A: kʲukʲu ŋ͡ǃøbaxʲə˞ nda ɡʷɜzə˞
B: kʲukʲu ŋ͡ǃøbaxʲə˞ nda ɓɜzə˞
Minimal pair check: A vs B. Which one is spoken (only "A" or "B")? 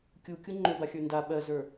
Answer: B